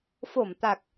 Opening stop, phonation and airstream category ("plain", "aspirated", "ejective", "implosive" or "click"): plain